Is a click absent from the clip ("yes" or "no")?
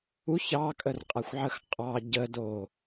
yes